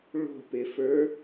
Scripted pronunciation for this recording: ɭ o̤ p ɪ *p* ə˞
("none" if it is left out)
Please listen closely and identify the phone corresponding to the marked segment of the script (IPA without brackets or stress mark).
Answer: f